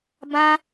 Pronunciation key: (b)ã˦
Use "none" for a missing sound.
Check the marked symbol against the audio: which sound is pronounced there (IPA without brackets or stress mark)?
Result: b